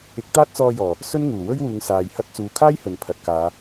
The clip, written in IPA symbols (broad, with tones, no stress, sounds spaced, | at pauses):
ɪ˨˥ k̚ t̪ aː˥ t̚ t͡s ɔː˧ j ɔː˨˩ | s ɵ˥ n ŋ uː˨˩ w ɵ˥ ɥ w uː˨˧ ŋ s aː˨ j h ɐ˧ t̚ t͡s uː˨ kʰ aː˥ j h ɵ˨ n pʰ ɐ˨ t̚ k aː˨˧